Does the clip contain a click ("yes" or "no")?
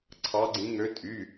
yes